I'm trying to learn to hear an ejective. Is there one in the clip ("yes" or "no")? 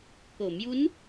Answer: no